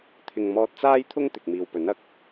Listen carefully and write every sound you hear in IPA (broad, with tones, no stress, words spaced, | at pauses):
t̪ʰɪ˨ŋmɔː˧t̚t͡saː˥jt̪ʰʊ˥ŋ t̪ɪ˨k̚miː˨wpɵ˨˥nɐ˨˥k̚